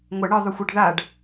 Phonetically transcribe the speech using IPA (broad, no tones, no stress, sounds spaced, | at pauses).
ŋʷ ɐ ɳ ɯ ðˤ u xʷ ɛ ɖ ð a ɖ